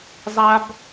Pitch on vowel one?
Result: high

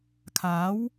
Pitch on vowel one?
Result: rising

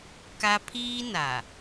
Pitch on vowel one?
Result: high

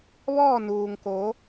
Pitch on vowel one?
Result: falling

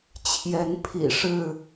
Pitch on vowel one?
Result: rising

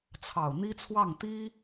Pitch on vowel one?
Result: low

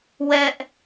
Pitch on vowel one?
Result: high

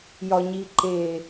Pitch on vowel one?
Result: low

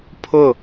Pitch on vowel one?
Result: falling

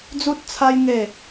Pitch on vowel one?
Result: high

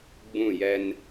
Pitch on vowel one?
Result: falling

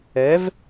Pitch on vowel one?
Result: rising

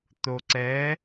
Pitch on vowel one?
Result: low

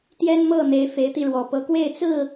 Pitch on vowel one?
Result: high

